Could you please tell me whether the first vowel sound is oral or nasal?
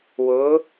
oral